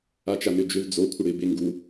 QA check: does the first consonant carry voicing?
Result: no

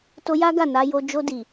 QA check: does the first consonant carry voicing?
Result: no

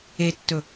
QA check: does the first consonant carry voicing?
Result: no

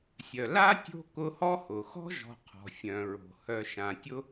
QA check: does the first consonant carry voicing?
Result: no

